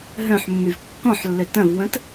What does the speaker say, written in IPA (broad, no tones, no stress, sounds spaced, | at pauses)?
ɦ œ̃ ħ mː y v kː ɔ̃ ħ lː ø t ɐ̃ v w ə̃ t